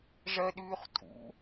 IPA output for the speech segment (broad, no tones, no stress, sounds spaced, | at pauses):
ʐ ɜ ɗ ʉː χ tʼ ṵ